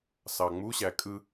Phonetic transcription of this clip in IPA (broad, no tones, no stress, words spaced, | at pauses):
sɑŋ͡muɕæ kʼɯ